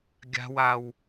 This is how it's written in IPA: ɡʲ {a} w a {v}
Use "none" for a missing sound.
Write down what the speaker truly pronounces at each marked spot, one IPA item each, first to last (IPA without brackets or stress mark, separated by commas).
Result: a̤, w